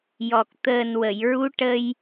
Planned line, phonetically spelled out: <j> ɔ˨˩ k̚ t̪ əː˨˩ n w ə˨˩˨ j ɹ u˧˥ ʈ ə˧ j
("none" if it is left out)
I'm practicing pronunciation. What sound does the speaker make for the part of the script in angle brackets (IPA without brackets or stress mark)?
j